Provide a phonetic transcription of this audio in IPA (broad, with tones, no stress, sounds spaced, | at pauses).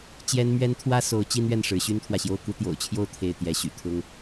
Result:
t͡ɕ j ɛ˥ n m ɥ ɛ˥ n t̪ʰ w ä˥ s o˧˥ ʊ̯ t͡ɕ i˥ n ɥ ɛ˥˩ n ʂ ɻ̩˧˥ ɕ y˥ n t̪ʰ w ä˨ ɕ j o˥˩ ʊ̯ k u˥ t̪ j o̰˨˩ ʊ̯ t͡ɕʰ j o˥˧ ʊ̯ t̪ʰ e˥˩ ɪ̯ t̪ j ɛ˧˥ ɕ y̰˨˩ t̪ʰ ʊ˥ ŋ